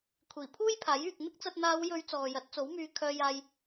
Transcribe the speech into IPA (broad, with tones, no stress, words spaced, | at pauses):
kʷʰiː˨˩pʰuː˥jpʰaː˨˥jyː˨k̚ n̪ɪ˥k̚t͡sɐ˧t̚ n̪aː˨˧wjɵ˨˧ɥ t͡sɔː˨jɐ˨˥t̚t͡so˨˥wmyː˧ kʰœː˧jaː˧j